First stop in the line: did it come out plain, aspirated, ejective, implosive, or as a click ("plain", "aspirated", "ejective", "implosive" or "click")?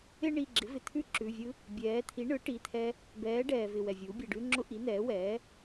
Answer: click